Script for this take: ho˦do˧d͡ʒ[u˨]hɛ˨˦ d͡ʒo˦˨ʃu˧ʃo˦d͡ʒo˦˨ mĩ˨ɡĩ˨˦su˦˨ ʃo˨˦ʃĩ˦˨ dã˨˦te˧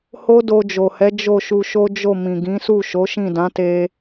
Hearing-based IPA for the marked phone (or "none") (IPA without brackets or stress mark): o˨